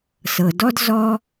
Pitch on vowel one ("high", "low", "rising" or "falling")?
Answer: low